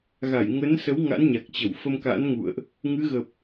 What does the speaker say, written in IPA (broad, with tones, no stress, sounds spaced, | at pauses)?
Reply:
ɣ a˧˩ j ŋ ə˨˦ n s ə˨˦ w ŋ a̰˧˥ n ɲ a˨˩ k̚ t͡ɕ ə˧˩ w f ə˧ m k a̰˧˥ n ŋ ṵ˧˨ ə̯ ʔ | ŋ ɨ˨˦ ɣ ə˨˩ p̚